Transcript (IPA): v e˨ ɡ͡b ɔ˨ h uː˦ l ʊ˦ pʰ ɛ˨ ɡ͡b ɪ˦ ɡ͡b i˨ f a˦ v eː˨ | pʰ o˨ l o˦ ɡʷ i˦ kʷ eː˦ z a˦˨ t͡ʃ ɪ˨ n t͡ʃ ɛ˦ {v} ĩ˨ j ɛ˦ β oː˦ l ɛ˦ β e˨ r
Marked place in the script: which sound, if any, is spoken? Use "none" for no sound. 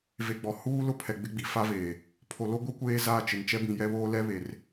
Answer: b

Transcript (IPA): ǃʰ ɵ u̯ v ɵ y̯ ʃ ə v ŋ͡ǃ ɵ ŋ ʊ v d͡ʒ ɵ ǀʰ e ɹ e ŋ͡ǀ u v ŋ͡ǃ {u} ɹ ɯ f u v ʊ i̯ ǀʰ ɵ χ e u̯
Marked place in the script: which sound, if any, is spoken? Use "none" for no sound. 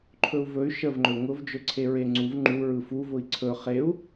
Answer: u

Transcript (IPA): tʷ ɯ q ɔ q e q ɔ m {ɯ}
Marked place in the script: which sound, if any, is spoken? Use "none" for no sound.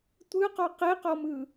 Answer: ɯ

